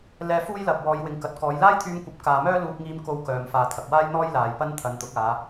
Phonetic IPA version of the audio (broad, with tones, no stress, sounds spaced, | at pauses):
l ɛː˧ f uː˥ j l ɐ˨ p̚ w ɔː˨˧ j w ɪ˨ ŋ k ɐ˨ t̚ k ɔː˨˧ j l aː˥ j t̪ʰ yː˧ m kʷ ɐ˨˥ p̚ k aː˨ m œː˥ l uː˧ p̚ ŋ iː˧ m k o˧ w k œː˧ m f aː˧ t̪ʰ ɐ˨ k̚ w aː˥ j n̪ ɔː˥ j l aː˨ j p ɐ˥ n t̪ʰ ɐ˨˧ n t̪ ʊ˨˥ k̚ aː˨˧